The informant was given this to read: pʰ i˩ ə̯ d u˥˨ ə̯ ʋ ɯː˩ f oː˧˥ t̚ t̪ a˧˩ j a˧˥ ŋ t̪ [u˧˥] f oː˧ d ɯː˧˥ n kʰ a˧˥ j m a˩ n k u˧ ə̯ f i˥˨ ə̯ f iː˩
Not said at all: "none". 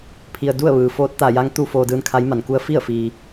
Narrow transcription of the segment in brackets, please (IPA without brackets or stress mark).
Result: u˧